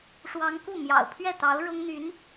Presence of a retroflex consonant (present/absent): present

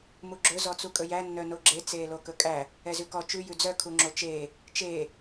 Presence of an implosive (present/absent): absent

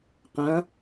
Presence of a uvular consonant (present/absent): present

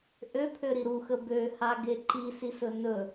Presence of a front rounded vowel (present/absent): present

